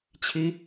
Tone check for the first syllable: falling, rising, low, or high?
high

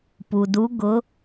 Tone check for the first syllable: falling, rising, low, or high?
low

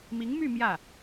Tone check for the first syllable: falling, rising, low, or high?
rising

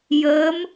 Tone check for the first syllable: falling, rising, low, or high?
rising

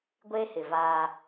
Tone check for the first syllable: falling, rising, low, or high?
high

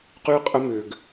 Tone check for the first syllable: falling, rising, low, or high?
high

